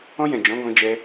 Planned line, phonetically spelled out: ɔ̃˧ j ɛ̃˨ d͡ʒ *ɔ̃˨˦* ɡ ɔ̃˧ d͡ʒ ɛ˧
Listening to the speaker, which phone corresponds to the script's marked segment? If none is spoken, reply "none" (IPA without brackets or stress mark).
ɔ̃˨˦